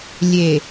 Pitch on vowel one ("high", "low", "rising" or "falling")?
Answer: low